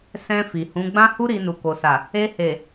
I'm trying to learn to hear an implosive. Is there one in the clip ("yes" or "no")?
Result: no